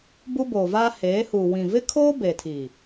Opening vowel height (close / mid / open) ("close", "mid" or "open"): close